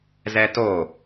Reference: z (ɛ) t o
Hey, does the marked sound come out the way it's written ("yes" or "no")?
yes